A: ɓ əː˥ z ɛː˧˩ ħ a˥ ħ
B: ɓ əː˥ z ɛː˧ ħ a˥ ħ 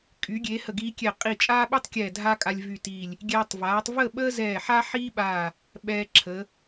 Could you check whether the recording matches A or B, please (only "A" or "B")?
A